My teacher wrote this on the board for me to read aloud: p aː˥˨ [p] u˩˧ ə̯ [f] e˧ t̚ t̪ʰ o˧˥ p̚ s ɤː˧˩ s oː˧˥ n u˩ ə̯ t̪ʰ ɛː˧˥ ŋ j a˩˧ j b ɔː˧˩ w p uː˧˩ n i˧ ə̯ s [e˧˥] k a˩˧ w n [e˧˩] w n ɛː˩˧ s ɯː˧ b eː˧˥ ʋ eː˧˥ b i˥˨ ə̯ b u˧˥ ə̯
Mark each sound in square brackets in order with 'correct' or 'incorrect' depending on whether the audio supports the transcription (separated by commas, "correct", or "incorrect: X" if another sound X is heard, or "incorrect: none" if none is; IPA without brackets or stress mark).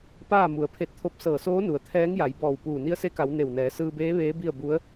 incorrect: m, incorrect: pʰ, correct, correct